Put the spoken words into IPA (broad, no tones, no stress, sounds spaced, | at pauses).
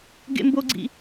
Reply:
ɡ ḛ m b o ɡ͡ǀ ḭ